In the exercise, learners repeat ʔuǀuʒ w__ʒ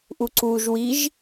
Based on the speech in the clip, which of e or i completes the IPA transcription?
i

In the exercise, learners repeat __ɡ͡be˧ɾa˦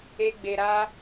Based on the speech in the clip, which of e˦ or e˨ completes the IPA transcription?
e˦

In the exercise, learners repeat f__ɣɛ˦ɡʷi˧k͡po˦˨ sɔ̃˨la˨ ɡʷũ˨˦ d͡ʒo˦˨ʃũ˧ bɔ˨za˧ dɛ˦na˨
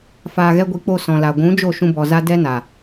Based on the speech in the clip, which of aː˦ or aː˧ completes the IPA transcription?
aː˧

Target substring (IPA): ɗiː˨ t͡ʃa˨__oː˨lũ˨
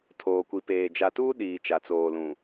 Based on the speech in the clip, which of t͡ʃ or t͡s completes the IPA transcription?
t͡s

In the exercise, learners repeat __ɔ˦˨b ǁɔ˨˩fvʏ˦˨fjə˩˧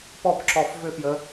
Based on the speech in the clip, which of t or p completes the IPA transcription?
p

